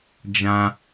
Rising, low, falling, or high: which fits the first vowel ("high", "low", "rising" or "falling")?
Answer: high